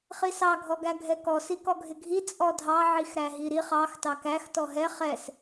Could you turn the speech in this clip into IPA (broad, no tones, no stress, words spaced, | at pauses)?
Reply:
χisɑ ɡʱɔɡæɡʱɛkɔ sikɔɡʱɪɡʱi t͡sʼɔdʱɑ ʕixɾæɦiɾiχ ɑx tɑkæx tɔɦɛ χɛs